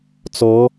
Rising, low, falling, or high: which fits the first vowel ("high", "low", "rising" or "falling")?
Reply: rising